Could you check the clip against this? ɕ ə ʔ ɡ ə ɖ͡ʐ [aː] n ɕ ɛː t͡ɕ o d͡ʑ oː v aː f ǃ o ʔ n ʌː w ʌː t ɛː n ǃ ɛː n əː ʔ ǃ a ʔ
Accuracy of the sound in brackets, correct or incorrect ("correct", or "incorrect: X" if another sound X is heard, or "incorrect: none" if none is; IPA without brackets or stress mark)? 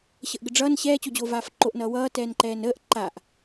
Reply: incorrect: ʌː